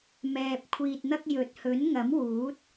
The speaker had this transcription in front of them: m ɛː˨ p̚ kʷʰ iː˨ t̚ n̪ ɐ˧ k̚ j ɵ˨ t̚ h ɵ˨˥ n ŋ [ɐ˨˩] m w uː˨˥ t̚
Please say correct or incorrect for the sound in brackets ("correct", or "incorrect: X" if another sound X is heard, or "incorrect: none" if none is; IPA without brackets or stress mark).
incorrect: ɐ˨˥